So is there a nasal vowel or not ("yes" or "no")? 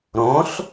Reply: yes